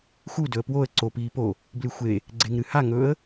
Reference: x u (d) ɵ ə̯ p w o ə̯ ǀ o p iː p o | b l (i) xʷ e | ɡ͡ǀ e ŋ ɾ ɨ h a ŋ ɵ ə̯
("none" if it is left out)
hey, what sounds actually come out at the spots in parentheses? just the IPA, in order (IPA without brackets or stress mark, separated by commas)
d, ɨ